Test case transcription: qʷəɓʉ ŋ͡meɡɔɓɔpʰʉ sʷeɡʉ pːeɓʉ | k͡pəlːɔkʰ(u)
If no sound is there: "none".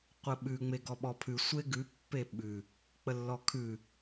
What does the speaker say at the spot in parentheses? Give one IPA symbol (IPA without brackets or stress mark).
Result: ʉ